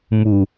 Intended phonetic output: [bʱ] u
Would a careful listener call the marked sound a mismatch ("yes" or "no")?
yes